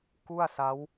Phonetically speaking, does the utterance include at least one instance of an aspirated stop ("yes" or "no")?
no